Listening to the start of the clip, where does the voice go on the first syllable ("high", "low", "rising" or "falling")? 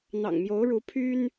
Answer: low